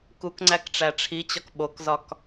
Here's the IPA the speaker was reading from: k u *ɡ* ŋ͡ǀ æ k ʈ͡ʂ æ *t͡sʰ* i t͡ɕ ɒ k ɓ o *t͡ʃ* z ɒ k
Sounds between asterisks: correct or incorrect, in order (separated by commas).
incorrect, incorrect, incorrect